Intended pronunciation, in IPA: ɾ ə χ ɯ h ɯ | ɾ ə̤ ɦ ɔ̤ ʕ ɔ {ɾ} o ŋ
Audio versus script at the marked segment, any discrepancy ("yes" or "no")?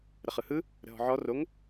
yes